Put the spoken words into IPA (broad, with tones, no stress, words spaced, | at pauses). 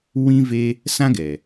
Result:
wĩ˦ve˦ | sã˦ɡɛ˨